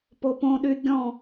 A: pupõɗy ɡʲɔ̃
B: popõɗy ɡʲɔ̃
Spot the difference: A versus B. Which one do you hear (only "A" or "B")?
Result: B